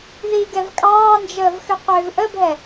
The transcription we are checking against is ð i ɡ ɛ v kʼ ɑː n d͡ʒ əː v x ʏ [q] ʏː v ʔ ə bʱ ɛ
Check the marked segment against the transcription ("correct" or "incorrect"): correct